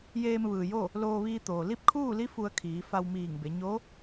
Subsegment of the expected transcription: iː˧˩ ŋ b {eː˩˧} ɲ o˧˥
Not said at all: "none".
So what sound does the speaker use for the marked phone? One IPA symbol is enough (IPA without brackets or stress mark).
e˩˧